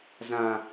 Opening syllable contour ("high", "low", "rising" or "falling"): high